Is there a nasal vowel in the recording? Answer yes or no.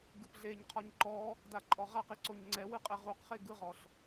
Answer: no